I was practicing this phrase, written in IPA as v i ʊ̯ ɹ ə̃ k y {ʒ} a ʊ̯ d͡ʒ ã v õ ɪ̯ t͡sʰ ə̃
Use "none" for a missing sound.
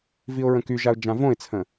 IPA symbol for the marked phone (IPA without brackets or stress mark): ʒ